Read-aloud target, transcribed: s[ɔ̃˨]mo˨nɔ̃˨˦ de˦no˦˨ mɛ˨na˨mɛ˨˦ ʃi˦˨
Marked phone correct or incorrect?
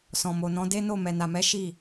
correct